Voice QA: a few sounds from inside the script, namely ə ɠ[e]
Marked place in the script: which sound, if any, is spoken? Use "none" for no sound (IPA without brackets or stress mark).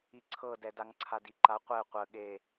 e